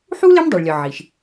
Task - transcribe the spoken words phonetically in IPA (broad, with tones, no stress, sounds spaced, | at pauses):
ħ u˥ l e˥ m dˤ e˩ ɭ lʲ ɒ˩ ʕ i˩ ʃ